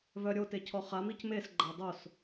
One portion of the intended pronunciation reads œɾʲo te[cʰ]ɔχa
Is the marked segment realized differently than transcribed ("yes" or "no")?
no